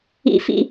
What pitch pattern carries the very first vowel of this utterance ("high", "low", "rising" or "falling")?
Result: low